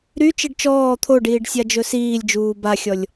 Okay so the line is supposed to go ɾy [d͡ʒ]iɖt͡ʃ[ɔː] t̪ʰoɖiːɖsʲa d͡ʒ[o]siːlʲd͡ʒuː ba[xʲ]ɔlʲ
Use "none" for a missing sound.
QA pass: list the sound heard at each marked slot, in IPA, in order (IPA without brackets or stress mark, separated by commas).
t͡ʃ, ɔː, ɵ, xʲ